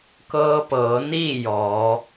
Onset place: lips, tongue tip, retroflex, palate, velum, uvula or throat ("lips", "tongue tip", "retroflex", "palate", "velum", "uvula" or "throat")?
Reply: velum